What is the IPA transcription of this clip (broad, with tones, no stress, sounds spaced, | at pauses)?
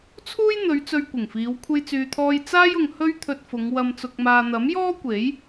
t͡sʰ uː˥ j n̪ ɵ˨˧ ɥ t͡s ɵ˧ ɥ kʷ ɪ˨˩ ŋ f iː˨˧ w kʷʰ e˧ j t͡s yː˨ t̪ʰ ɔː˧ j t͡s aː˥ j ʊ˨ ŋ h ɵ˥ ɥ t̪ʰ ɵ˧ t̚ f ʊ˨˧ ŋ w ɐ˨ m t͡s ʊ˨ k̚ m aː˨ n̪ ɐ˨˥ m j ɔː˥ kʷ e˨˥ j